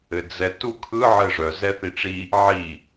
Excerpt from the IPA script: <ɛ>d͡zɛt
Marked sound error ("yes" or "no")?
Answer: yes